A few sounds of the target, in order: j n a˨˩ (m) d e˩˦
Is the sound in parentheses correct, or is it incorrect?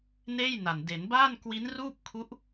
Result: incorrect